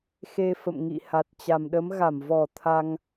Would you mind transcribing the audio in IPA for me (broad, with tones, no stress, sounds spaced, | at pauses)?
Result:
x e˧ f ə̰˧˨ m ŋ ḭ˧˨ h a˨˩ t̚ t͡ɕ a˨˩ m ɗ ə˨˦ m ɣ a˧˩ m v ɔ˧˩ t̪ʰ a˧ ŋ